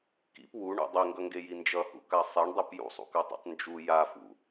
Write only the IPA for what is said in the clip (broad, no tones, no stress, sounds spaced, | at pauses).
k ḭ p w u ɳ ṵ dˤ e ŋ ɡ ʌ ŋ ɡ e j i n d͡ʒ ʌ h ṵ k a sˤ e ɳ dˤ u p j ṵ sˤ ṵ k a tˤ ḭ tˤ n d͡ʒ u j a f ṵ